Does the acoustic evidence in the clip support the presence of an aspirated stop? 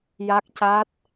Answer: no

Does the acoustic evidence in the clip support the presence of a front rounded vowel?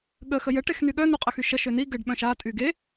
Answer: yes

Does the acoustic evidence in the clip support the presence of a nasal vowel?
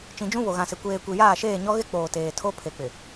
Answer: yes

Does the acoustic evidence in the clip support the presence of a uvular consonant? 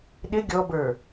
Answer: no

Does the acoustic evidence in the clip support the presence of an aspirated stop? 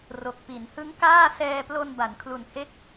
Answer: yes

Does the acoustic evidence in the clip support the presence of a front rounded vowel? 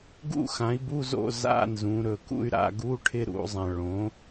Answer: yes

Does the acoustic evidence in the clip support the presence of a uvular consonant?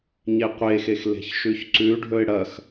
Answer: yes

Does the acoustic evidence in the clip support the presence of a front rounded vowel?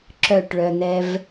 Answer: yes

